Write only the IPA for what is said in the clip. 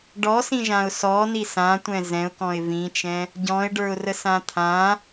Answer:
ɖɔsĩʒãʊ̯ sɔni sãtʷɛ̃ zɛ̃ʊ̯kɔ̃ɪ̯ vĩt͡ʃɛ̃ | ɟɔ̃ɪ̯ɖə˞ʊ̯rəsã t̪ʰã

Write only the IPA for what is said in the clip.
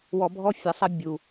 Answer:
wɔ˧bʱɔ˦fʲɐ˨˦sˤɐ˦ bʲu˨

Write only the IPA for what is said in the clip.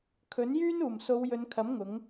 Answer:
kʰɵ˨˥njyː˥n uː˨˩mso˨˧wjɵ˨˧nkʰɐ˨˥m ŋʊ˨˥ŋ

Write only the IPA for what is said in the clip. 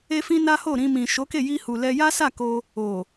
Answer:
e˦fĩ˦na˦ho˦˨ ɾĩ˧mĩ˨ ʃo˨˦ke˦˨ ji˧hu˨ lɛ˧ja˦sa˦˨ko˧ | o˨

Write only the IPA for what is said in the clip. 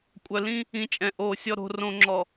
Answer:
kʷʼœ˨lĩ˦ | ĩ˨˦t͡ʃʼɛ̃˨ʔoː˨ sʲɔ˨ɾo̤˨rõ˨ŋ͡ǁɔ˨

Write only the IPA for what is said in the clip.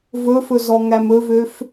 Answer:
vɵfɵ zɔŋæmɵvøf

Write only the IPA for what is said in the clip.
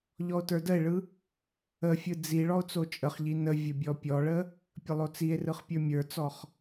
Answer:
ʎɔo̯tə˞dəe̯ɭɯ | əfʲɯ d͡zi ɭɔo̯t͡sot͡ʃʼəχʎi nə vʲəbʲɔpʲɔɭə | pʲəlˠot͡sie̯rɯχ pʲə˞mʲə˞t͡sɔχ

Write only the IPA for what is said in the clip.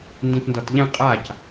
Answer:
ndĩtndɔtʎɛ̃ qʼac

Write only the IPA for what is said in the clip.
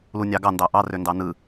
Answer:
lunʲɑɡɑ ndɑʔɑ røndɑnɯ

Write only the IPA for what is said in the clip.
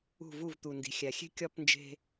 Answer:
ṳ˦˨vu˦˨vt̪u˨ndi̤˨ xʲæ˨xʲe̤˦ kʲɒ˦pnd͡ʒe̤˦

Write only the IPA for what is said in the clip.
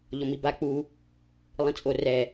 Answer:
ʎɔmiba k͡pu | lˠĩt͡sʼo rɛ

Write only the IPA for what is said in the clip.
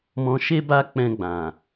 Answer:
mɔ̃˧ ʃe˦ba˦ k͡pɛ̃˧ɡ͡bã˨

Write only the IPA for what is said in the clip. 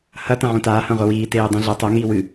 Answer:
hɐ tɐ̃ʕõtaː hɐ̃ʁʷɐwiː teːdˤĩɮɐ tˤɐ ŋiːwɨ

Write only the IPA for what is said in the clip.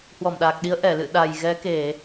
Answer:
hwɔ˧˩mɗaː˨˩k̚ɗi˨˦ə̯ ʔɛ˧˩lɨ̰˧˨ ɗa˨˩jɣɛ˨˦ke˧˩˨

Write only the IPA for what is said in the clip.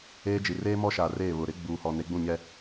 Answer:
eː˦d͡ʒi˨ reː˦mɔ˦ʃa˨ reː˦˨βʊ˨ ɾɪ˦ ɡ͡buː˨hɔ˨ ne˨˦ɡ͡bũ˦˨ɲɛ˦

